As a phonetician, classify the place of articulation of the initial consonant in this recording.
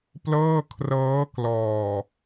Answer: labial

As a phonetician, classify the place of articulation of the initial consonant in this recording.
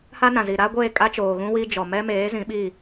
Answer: glottal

